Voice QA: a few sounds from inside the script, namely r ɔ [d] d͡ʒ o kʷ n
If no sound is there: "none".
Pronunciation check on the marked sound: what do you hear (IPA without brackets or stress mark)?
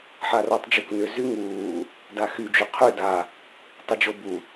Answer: tˤ